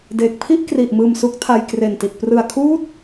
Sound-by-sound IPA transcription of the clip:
d eː˨˩ k̚ pʰ i˥˩ ʔ k r i˨˩ ʔ m ɯː˨˩ m s u˦˥ k̚ tʰ a˧ j k r e˨˩ n t i˨˩ t̚ p r ɯ˨˩ a̯ kʰ uː˦˥ t̚

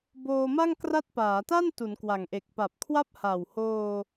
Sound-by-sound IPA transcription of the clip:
b oː˧ m a˥˩ ŋ k r a˦˥ t̚ p aː˩˦ t a˥˩ n t u˩˦ n k w a˨˩ ŋ ʔ e˨˩ k̚ p a˨˩ p̚ kʰ w a˥˩ p̚ h a˨˩ w h oː˧

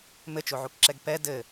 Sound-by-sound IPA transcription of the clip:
m ɘ t͡ʃ o ʕ u k ǁ ɛ ɡ p ɛ d ɘ

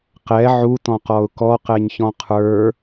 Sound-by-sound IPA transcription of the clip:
q ɛ ʕ u t ɔ̃ q ɔ ʊ̯ k ɔ q ɛ ɲ ç ɔ̃ qʰ ə˞

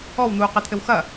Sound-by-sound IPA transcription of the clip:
ɔ w n̪ uː q ɛ t̪ʰ ɘ w x ɐ

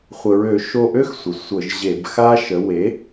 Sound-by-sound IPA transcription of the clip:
χʷ ə˩ ɹ ø˧˩˧ ʃ o˦˨ ʔ ø˥ x sʷ ə˩ sʷ ə˧˩˧ ʒ ʑ e˧˩˧ b x a˥ ʃ ə˩˥ w e˩˥

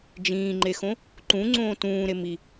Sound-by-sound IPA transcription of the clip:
d͡ʒ ĩː ŋ͡ǃ e x õ | ǃ ũ ŋ͡ǀ õː t ũː ɾ e m i

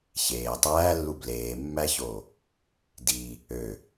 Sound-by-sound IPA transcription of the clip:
ç eː tˤ æː lː u b l eː mː æ ç o | d i | ø

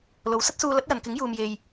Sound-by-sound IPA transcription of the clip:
l o˨˧ w s ɐ˥ t̚ s uː˧ l ɐ˨˥ t̚ j ɐ˨ n k ɪ˨˥ ŋ j uː˧ m j e˧ j

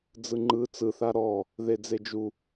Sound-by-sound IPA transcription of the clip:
d͡z ɯ ŋ͡ǃ ɯ t͡s ɯ θ a ɾ ɔ | ð e d͡z e d͡ʒ u

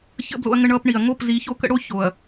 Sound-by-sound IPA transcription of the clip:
ç ə̰˦ b l o̰˦ ɐ̯ ŋ ə˦ ɳ ʌː˦ p ɳ i˨ ɐ̯ ŋ o˦˨ p z i˨˦ ç o˦ k ə̰˦ ɽ o˦ ç o˨ ɐ̯

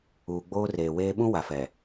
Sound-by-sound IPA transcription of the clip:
uː˨ ɡ͡b oː˦ r eː˨ w eː˦ ɓ ũ˦ w a˨ f ɛ˨

